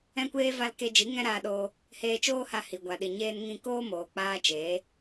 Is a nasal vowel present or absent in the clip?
present